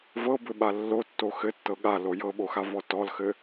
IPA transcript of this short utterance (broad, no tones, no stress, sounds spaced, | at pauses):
v ɤ b ɘ ɓ a lː o tː o x ɘ tː ɤ ɠ a l o j ɤ ɓ o x a v ɔ t ɔ l x ɘ